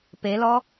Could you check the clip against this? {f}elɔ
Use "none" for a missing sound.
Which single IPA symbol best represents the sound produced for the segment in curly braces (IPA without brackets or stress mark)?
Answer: p